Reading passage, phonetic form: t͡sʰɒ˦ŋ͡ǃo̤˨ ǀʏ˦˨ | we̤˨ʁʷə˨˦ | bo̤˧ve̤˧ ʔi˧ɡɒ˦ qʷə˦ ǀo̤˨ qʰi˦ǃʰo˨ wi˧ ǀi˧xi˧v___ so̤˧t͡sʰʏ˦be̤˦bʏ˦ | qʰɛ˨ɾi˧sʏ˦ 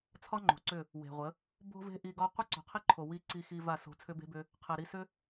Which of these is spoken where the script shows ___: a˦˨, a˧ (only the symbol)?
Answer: a˦˨